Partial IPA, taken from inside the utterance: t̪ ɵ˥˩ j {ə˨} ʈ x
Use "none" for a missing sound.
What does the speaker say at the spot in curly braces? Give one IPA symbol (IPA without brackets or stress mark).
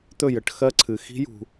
ə˨